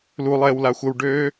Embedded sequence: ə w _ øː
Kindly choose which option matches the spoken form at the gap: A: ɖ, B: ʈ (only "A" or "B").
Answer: A